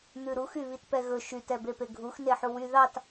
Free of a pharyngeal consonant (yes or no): no